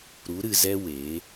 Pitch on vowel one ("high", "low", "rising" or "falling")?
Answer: rising